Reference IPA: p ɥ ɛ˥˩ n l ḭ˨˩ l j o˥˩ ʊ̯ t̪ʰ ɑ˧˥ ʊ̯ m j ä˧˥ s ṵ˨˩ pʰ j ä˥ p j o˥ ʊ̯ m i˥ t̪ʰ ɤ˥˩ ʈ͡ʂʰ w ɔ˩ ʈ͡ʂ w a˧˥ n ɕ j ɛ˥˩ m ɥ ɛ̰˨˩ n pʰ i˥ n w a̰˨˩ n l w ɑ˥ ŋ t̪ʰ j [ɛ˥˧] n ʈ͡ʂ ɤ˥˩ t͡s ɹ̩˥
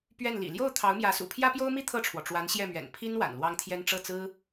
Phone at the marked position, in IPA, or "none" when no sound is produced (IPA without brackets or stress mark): ɛ˥